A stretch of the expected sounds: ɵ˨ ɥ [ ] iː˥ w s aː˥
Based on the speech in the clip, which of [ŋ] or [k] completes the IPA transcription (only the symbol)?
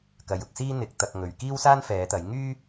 k